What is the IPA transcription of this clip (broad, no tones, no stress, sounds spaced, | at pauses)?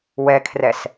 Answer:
w ɛ kʰ r ɛ s